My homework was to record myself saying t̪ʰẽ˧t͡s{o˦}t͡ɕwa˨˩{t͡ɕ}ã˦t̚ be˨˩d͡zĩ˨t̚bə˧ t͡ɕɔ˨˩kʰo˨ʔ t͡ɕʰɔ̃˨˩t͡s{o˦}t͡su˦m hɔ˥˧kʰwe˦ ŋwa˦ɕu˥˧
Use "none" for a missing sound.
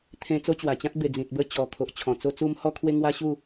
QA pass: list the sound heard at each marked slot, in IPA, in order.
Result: o˦, t͡ɕ, o˦

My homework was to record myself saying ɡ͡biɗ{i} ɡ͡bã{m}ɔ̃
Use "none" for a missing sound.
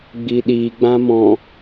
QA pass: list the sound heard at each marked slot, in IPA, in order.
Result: i, m

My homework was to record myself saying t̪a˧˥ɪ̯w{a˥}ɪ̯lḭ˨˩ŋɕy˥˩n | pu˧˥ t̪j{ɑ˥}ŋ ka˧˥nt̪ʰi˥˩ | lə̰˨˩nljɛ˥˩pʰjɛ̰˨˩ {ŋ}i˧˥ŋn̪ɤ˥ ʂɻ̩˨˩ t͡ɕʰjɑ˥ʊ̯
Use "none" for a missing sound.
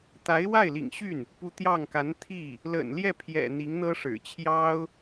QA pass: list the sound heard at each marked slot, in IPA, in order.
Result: a˥˩, ɑ˥˩, n̪

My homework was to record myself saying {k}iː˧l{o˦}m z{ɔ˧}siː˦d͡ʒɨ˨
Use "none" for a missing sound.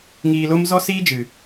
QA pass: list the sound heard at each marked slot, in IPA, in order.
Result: ŋ, o˦, ɔ˦

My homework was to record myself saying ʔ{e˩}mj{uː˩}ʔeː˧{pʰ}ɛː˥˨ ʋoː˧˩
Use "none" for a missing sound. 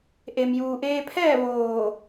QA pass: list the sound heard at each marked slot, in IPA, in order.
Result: e˩, uː˩, pʰ

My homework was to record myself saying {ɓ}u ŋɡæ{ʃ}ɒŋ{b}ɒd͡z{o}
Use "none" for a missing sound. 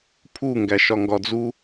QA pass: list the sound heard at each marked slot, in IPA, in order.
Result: pʰ, ʃ, ɡ, u

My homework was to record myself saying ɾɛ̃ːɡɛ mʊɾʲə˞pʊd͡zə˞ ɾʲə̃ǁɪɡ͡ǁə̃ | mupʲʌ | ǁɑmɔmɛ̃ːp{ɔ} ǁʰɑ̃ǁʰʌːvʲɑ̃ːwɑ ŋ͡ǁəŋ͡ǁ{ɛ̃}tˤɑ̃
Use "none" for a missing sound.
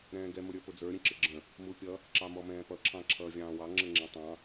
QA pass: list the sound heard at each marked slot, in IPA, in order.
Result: ʌ, ɛ̃

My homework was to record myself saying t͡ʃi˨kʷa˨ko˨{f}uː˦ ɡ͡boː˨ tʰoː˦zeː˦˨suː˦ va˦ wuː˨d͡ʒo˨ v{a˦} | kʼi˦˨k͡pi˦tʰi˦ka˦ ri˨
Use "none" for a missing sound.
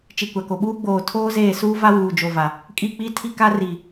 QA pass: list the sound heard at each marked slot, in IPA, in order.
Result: ɓ, a˨

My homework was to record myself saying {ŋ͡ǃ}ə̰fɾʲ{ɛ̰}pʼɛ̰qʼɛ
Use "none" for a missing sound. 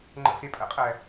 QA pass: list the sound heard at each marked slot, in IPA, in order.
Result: ŋ͡ǃ, ɛ

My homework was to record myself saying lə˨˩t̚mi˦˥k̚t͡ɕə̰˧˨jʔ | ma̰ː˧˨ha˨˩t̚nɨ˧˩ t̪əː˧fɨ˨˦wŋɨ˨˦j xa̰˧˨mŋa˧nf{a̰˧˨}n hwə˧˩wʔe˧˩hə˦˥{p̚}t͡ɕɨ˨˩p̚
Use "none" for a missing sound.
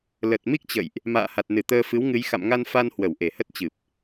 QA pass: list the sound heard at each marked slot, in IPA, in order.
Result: a˧, t̚

